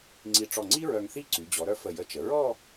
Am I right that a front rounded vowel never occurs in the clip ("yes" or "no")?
no